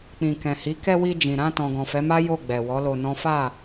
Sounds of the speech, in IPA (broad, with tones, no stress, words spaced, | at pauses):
k͡pĩ˨kɛ̃˨hi˨˦ kɛ˧ wi˧d͡ʒĩ˨ɾã˧ tɔ̃˨ɡɔ̃˨fɛ˨˦ma˦ jo˦˨ ɡ͡bɛ˨wɔ˨˦lo˧nɔ̃˦ fa˦˨